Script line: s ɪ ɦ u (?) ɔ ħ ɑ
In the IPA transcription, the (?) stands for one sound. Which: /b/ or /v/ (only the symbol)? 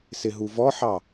v